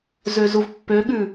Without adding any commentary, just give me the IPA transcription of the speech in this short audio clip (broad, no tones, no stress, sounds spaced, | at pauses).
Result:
z ø z u v pː ø ɠ ʉ